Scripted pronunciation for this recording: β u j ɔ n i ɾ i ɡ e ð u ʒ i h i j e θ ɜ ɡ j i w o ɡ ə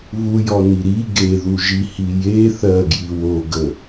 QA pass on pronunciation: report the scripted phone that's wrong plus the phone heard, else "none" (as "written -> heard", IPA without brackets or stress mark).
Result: none